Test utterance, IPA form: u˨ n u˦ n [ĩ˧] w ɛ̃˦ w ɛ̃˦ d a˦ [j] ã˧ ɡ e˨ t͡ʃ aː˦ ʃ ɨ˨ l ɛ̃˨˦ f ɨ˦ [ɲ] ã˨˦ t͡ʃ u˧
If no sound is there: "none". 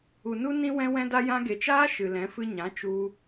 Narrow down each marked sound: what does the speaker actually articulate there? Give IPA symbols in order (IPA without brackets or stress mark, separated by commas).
ĩ˦, j, ɲ